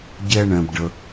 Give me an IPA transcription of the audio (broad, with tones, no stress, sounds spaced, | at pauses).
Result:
ɟ ɛ˧ ɳ ɛ̃˧ b ɖ ə˧